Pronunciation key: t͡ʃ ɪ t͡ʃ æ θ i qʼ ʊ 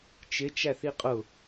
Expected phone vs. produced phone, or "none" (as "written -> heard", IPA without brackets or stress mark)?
none